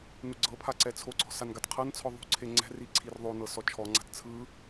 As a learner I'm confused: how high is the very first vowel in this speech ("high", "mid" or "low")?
high